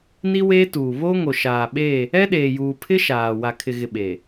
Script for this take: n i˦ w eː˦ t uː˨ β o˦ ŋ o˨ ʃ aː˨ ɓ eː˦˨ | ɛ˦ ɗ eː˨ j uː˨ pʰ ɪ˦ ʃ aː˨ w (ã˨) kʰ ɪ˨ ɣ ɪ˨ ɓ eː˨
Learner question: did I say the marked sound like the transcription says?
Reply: no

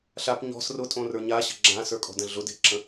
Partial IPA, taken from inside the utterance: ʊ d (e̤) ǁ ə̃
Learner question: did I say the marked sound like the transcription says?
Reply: yes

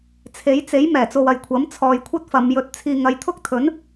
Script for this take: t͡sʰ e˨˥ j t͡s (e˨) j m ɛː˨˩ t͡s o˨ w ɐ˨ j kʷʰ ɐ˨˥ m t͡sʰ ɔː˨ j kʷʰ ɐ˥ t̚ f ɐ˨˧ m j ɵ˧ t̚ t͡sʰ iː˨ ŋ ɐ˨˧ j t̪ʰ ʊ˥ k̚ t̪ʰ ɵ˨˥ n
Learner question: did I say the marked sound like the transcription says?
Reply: no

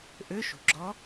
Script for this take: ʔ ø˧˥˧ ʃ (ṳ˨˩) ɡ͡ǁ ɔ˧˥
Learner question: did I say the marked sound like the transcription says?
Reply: yes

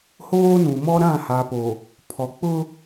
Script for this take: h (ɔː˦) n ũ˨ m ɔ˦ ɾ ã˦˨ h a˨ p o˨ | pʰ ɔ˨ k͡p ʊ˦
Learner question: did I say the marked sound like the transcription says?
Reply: no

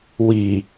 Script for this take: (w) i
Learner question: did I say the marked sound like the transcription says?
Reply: yes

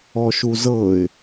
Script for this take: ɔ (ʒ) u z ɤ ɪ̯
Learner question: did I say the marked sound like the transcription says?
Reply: no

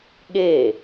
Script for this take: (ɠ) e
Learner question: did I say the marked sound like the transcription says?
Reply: yes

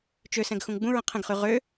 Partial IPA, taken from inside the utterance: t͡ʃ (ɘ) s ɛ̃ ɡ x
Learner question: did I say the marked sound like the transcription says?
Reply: no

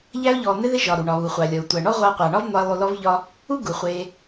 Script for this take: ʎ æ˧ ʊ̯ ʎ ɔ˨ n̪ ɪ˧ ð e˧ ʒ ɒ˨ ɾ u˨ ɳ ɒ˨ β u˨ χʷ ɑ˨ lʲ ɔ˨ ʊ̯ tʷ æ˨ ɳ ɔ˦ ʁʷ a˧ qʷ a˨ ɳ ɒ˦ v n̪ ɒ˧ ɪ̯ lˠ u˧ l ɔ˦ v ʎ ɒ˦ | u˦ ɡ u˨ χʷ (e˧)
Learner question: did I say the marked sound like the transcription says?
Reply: yes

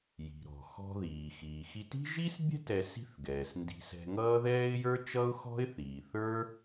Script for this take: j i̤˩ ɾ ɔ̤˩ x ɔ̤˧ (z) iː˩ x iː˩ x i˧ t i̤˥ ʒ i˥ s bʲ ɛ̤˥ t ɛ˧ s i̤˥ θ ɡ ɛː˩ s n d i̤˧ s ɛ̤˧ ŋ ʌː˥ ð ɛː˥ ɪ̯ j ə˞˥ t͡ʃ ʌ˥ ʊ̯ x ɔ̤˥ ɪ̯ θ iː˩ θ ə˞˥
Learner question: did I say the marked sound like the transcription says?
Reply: no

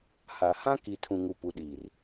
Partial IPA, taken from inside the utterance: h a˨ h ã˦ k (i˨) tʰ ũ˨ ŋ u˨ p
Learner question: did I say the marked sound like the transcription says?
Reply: yes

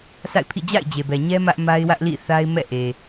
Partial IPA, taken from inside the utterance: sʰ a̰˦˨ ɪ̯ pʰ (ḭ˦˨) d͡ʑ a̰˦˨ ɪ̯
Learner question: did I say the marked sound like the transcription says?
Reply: yes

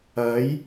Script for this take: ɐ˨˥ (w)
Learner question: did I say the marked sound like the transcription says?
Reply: no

